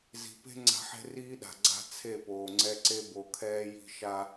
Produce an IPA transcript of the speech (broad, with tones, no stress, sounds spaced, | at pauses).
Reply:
z i̤˨ p e̤˦ ŋ͡ǀ a̤˦ ħ e̤˦ r iː˦ ɗ a̤˨ ɡ͡ǀ a̤˦ t͡sʰ e˦˨ p oː˨ ŋ͡ǀ ɛ˦ ǀ e˦ b o˨ kʰ ɛː˦ j i̤˦ ʃ a˦